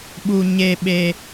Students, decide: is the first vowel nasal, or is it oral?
oral